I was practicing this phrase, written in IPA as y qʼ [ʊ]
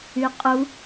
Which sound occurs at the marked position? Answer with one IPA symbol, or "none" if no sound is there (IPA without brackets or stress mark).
u